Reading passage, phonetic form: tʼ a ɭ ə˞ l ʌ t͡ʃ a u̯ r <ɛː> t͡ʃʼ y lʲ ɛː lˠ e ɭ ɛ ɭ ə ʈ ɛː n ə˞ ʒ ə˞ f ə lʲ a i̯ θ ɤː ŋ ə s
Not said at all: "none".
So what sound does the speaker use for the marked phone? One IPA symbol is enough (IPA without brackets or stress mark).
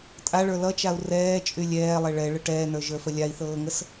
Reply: ɛː